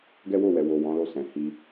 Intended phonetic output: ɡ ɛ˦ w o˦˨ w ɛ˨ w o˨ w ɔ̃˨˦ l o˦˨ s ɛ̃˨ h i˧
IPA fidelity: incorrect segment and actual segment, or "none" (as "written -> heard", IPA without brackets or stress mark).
none